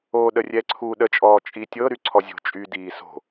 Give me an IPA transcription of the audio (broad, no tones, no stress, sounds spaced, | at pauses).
o ɗ ə rʲ ɛ ǀʰ u ɗ ə t͡ʃʼ ɔː t͡ʃʼ i tʲ ɤ ɾ y ǀʰ ɔ zʲ o̤ t͡ʃʼ y d iː s o̤